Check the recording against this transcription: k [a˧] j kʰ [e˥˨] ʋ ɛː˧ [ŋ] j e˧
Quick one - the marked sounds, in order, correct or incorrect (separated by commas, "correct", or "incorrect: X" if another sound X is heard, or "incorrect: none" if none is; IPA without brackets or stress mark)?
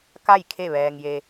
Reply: incorrect: a˥˨, correct, correct